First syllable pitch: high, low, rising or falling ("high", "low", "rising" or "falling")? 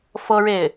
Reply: high